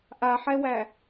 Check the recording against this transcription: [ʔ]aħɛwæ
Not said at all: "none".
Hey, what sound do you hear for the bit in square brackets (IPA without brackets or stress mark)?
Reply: ʔ